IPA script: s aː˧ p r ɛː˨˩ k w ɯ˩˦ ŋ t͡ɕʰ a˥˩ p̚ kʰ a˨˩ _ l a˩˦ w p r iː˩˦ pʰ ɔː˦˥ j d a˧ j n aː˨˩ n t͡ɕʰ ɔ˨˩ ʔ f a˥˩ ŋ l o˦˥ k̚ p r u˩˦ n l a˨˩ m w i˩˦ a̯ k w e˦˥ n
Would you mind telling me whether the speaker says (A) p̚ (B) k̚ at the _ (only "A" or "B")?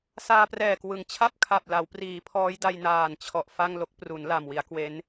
A